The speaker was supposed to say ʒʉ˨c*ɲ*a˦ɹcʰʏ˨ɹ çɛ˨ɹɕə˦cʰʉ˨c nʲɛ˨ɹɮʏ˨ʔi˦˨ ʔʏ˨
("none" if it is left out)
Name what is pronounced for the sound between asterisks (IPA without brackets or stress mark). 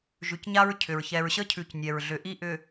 ɲ